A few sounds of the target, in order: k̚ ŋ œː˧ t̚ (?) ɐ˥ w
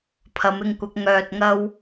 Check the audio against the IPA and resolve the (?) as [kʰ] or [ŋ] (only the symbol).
ŋ